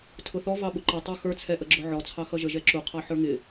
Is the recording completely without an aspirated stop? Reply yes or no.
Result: no